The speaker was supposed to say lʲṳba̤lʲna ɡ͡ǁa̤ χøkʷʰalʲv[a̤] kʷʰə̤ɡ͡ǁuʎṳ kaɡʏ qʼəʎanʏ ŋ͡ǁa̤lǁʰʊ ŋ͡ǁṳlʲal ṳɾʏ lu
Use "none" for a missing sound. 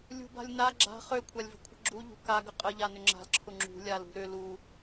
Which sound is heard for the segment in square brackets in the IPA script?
ə̤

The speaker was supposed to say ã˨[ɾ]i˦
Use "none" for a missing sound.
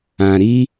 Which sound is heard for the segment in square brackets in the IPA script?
ɾ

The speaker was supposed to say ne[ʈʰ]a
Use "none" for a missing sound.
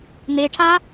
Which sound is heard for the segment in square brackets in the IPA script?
ʈʰ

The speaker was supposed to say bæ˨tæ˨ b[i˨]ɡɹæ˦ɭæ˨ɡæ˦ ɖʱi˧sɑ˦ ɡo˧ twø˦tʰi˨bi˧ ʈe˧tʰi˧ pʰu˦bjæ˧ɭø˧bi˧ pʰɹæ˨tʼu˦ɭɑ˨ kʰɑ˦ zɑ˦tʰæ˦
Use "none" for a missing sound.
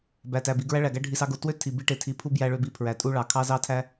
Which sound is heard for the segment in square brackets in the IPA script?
i˨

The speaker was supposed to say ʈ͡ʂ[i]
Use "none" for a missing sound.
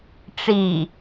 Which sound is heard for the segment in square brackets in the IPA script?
i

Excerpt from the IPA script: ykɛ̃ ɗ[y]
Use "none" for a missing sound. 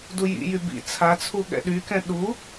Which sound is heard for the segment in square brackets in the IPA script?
u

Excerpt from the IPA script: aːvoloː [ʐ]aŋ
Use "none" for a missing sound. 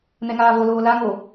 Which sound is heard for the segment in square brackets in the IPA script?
l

